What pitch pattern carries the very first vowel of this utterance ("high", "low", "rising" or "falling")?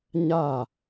falling